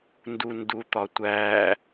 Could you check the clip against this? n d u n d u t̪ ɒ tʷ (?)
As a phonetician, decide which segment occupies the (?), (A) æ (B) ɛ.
A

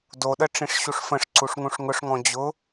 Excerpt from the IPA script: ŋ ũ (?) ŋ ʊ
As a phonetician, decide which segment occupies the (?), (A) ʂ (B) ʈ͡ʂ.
A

